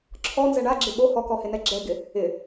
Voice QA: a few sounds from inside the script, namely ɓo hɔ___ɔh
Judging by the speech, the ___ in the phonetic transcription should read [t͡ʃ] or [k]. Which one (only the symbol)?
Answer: k